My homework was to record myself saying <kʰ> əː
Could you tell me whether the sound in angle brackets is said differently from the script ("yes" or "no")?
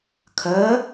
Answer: no